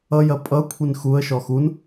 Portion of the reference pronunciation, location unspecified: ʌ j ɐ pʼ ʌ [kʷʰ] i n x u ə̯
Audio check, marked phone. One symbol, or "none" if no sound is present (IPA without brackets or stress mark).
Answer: kʷʰ